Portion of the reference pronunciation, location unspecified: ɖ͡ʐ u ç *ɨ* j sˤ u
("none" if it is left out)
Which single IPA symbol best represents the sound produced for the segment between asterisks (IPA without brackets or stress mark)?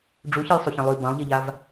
ɨ